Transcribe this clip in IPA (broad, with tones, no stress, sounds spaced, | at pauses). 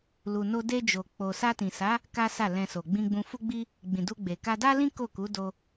l u˨ n o˧ d e˧ d͡ʒ o˨ k͡p o˨ s a˧ t ĩ˨ s a˨˦ | k a˦ s a˦˨ l ɛ̃˧ s o˨ ɡ͡b ĩ˧ ɡ͡b ũ˧ f u˦ ɡ͡b i˦ | ɡ͡b ĩ˨ d u˧ ɡ͡b e˨ k a˧ d a˦ l ĩ˦ k o˦˨ k u˨˦ d o˦